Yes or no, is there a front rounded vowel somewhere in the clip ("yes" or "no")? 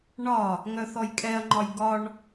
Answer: yes